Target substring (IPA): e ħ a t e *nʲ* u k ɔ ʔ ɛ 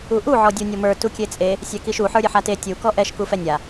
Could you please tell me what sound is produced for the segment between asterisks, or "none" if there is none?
tʲ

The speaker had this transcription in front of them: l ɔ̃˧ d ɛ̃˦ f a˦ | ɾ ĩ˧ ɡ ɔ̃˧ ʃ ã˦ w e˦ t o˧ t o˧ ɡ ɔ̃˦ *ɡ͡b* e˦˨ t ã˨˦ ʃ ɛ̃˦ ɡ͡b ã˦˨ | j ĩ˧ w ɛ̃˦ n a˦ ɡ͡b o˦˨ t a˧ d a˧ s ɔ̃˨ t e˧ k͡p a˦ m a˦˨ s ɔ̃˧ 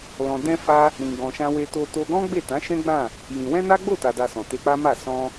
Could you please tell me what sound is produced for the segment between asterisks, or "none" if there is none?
ɡ͡b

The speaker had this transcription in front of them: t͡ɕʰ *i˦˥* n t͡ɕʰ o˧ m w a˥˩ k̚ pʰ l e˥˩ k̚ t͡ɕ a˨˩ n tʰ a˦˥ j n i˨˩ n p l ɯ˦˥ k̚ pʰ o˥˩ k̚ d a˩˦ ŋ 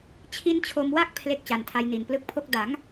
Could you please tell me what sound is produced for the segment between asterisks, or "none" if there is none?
i˦˥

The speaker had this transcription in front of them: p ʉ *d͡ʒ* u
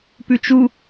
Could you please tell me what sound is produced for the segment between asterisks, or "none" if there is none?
t͡ʃ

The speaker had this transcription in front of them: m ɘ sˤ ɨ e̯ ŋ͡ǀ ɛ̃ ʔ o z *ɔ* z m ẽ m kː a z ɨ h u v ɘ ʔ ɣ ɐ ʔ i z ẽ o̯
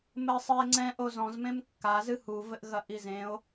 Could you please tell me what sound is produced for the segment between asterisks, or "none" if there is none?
ɔ̃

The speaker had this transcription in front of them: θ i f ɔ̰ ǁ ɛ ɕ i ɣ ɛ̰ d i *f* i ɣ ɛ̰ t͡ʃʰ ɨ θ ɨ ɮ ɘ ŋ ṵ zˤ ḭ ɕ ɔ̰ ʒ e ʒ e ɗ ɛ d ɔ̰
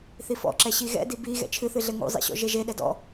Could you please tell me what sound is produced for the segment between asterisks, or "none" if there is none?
b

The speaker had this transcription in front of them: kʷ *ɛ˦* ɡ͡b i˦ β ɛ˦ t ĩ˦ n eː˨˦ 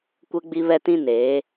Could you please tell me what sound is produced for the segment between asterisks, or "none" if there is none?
ɛ˦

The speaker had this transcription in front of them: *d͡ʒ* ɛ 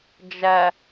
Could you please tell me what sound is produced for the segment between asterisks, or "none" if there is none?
d͡ʒ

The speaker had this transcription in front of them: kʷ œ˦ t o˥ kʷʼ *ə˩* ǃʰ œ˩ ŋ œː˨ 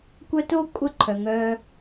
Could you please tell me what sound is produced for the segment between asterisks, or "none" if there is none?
ə˦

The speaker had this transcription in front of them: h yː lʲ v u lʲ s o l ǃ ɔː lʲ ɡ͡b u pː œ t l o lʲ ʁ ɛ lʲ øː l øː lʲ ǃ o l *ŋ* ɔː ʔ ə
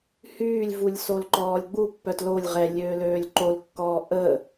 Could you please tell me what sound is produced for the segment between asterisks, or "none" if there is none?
kː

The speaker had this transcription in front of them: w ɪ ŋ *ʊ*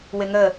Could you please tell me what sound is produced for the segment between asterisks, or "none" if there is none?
ə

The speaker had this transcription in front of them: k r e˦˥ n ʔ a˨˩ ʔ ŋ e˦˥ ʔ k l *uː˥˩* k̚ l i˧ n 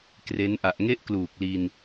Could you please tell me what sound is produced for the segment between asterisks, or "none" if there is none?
uː˨˩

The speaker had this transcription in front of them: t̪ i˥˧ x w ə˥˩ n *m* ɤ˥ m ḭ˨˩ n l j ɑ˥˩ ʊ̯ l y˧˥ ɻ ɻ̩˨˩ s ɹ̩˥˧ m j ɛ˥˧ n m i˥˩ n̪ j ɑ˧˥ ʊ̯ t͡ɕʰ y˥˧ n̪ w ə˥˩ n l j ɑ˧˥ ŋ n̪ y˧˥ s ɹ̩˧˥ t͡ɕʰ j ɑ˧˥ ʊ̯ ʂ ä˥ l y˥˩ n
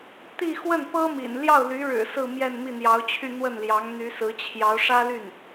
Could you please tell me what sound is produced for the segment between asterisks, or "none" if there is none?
p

